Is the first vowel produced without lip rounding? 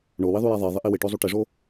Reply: no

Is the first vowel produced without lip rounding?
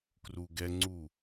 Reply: no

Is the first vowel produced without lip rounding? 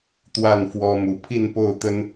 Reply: yes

